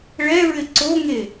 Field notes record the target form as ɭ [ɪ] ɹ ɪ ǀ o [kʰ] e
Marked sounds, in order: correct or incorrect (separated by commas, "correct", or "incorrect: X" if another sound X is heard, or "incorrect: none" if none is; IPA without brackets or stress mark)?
incorrect: ɛ, incorrect: ŋ